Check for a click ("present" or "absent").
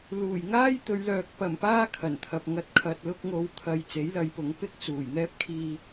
absent